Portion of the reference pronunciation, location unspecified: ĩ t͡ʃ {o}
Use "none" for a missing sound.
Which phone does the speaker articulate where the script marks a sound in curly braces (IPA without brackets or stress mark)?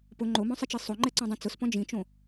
õ